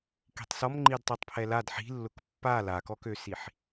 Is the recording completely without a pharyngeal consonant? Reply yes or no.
no